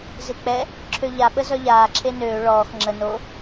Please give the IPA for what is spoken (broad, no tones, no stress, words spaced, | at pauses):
zek͡pɛ | ǁʰøʎaɓə zœʎaː ǁʰenøː ɭɔːx ŋ͡ǁə no